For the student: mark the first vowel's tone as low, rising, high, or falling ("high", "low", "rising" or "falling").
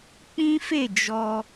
high